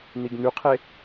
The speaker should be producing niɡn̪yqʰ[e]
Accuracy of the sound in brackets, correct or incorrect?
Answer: correct